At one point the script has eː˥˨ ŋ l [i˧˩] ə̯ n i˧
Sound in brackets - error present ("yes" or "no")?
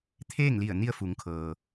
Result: no